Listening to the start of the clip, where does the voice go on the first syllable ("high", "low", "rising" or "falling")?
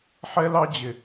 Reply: high